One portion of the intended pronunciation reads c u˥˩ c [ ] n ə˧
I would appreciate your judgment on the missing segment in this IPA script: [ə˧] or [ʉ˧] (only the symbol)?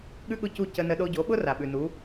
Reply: ə˧